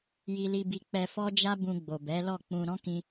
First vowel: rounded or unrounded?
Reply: unrounded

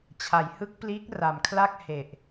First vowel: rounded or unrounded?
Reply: unrounded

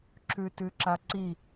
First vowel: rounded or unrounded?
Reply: rounded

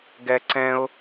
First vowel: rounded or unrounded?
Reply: unrounded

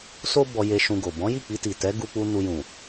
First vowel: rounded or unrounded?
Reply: rounded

